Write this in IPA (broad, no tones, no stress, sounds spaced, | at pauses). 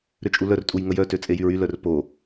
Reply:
ɾ ø t͡ʃʼ u l œ r tʼ u j ŋ ə j œ t ø t͡sʼ e j y ɹ y l œ r p o